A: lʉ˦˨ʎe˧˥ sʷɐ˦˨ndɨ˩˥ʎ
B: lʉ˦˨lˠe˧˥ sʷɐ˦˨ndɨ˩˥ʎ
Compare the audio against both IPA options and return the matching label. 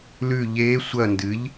A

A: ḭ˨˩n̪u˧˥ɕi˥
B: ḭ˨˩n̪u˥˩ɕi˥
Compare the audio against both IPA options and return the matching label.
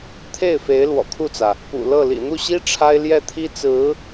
B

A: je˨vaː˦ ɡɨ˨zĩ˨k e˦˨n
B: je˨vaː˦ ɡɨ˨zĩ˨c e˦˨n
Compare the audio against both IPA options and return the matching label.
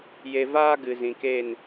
A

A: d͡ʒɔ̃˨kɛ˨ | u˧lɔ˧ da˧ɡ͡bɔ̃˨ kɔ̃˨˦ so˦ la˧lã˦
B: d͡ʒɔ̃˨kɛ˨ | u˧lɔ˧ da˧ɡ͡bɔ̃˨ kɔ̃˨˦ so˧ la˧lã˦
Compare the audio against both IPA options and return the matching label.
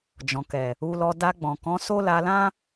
A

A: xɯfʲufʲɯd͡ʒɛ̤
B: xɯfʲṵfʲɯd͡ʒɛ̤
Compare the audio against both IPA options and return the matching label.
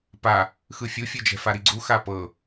A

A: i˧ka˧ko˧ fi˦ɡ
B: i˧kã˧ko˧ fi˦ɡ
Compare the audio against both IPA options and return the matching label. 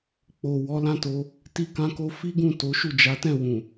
B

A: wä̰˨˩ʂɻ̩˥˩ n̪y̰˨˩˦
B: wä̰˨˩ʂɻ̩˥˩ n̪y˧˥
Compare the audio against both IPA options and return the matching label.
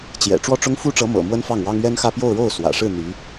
B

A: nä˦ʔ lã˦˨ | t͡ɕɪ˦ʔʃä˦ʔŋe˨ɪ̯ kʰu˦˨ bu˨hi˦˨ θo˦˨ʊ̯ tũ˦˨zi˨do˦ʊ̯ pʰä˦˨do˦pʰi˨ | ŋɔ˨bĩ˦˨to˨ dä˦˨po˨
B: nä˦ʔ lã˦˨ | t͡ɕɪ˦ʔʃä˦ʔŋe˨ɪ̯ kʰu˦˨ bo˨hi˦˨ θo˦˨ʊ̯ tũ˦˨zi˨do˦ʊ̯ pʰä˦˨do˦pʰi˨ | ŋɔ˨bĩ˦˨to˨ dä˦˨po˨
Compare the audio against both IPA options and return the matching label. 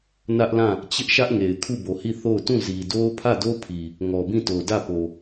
B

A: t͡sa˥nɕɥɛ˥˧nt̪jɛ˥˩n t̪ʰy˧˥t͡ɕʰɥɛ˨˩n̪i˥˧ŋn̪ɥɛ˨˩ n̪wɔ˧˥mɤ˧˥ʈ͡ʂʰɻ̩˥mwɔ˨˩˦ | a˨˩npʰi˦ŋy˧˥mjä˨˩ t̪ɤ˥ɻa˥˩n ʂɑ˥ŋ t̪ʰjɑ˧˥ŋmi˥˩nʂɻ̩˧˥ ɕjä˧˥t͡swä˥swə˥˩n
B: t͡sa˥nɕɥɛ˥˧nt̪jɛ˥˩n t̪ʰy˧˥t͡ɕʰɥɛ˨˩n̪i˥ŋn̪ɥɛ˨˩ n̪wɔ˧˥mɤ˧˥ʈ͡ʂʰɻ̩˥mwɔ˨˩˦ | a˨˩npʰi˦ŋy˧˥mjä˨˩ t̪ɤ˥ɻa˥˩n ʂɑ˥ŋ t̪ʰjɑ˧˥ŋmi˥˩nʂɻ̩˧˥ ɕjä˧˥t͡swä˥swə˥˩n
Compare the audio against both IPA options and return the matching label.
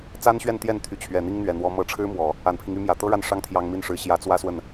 B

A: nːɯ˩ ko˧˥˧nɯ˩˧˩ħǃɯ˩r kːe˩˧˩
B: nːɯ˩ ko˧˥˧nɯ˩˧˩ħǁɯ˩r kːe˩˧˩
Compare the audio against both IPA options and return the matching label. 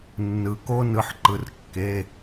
A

